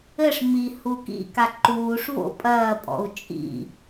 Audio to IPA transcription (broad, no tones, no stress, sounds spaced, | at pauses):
ɘ ʂ m i h u k ḭ k a ǃ uː ʂ v o̰ pʼ ɐː pʼ ɔ̰ u̯ t͡ʃʼ ḭ